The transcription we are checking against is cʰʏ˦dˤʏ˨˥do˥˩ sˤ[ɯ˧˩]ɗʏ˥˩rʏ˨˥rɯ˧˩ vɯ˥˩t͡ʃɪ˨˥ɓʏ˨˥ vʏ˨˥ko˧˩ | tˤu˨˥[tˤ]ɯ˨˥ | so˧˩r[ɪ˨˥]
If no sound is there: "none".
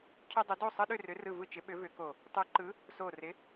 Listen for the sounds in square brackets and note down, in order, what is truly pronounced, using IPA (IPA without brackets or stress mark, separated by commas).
ɯ˦, ǃ, ɪ˨˥